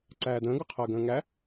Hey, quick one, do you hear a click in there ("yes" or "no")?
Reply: yes